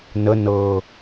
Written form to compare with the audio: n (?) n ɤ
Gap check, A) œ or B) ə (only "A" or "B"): B